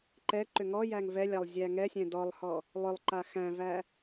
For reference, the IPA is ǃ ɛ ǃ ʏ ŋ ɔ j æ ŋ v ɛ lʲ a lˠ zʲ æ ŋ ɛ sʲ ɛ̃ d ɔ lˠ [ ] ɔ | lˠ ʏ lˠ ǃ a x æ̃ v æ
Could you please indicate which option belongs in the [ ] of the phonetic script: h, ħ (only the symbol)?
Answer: h